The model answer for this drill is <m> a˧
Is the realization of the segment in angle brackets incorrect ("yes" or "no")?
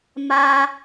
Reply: no